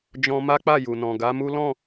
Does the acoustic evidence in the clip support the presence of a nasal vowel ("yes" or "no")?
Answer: yes